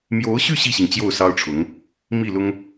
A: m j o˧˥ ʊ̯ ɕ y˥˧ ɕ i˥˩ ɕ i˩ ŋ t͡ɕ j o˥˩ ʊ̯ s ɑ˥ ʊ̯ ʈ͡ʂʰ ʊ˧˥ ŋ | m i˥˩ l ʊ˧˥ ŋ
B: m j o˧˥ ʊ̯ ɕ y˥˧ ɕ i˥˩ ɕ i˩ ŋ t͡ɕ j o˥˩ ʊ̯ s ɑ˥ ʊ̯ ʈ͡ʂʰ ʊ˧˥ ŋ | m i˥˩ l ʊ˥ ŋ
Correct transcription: B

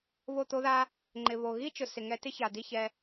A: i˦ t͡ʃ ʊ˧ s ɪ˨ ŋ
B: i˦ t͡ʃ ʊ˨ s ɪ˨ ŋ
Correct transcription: B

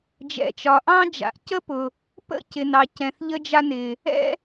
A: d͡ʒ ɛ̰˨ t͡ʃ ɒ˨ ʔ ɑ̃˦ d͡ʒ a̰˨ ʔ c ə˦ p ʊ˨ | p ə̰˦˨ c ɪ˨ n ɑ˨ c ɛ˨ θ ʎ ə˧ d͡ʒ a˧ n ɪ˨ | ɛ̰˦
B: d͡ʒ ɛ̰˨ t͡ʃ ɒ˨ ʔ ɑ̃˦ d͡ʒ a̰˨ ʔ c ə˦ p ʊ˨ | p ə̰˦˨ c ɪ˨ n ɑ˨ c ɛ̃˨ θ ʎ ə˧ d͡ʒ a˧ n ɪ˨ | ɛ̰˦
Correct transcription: B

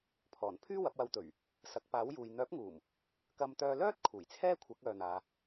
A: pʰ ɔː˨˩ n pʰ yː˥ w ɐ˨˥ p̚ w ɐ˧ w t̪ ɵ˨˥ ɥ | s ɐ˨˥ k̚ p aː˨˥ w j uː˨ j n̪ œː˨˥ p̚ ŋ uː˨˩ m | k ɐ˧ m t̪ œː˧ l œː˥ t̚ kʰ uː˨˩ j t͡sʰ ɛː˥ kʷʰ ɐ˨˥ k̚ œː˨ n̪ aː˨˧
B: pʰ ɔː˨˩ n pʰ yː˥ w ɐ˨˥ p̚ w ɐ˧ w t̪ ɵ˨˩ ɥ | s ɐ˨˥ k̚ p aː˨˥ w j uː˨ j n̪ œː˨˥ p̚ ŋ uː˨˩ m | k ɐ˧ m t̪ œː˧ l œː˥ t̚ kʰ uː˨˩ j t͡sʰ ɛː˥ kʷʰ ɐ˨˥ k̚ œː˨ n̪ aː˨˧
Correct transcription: B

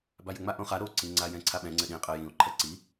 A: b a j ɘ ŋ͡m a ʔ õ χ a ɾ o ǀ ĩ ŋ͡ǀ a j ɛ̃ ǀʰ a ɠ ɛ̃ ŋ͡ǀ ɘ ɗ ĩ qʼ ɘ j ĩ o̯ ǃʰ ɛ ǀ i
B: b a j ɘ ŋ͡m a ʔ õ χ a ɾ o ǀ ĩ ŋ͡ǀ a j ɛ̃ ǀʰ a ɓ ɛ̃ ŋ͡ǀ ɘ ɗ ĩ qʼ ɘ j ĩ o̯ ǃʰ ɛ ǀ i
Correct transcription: B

